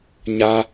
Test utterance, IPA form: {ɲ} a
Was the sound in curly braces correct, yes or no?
yes